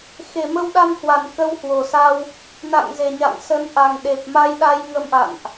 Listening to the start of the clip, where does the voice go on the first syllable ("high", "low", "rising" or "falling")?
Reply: low